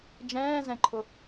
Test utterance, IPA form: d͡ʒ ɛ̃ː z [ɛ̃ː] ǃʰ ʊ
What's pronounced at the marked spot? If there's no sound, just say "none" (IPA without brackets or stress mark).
ɛ̃